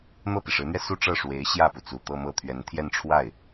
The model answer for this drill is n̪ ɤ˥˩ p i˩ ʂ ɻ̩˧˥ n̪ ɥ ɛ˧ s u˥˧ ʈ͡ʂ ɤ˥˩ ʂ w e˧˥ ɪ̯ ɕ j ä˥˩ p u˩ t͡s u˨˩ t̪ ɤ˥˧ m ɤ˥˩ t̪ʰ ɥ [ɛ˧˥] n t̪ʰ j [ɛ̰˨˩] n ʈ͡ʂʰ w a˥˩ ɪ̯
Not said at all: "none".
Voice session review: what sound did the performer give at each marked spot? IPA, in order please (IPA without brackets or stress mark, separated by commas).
ɛ˧˥, ɛ˥˧